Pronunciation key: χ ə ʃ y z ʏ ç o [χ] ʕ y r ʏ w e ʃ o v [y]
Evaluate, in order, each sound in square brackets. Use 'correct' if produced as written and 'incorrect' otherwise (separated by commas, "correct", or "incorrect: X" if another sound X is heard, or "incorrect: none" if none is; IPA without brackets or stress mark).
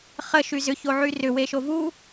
incorrect: none, incorrect: u